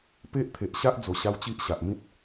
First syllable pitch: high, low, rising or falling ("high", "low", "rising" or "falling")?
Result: high